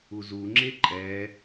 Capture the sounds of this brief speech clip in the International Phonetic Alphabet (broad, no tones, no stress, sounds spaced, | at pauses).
u z u ŋ͡ǁ e ǃʼ ɛ